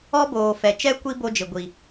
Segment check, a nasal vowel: absent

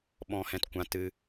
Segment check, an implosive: present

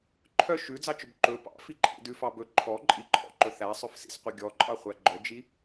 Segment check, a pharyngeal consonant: absent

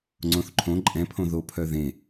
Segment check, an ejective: present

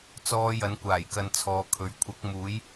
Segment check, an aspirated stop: present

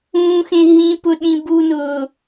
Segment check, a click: absent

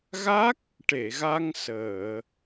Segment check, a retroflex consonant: present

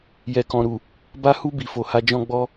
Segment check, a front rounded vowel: absent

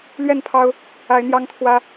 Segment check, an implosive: absent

